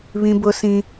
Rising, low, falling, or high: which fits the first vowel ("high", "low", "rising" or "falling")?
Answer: high